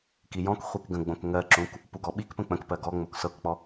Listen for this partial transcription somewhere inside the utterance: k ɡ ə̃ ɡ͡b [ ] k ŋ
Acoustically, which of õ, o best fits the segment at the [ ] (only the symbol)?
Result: õ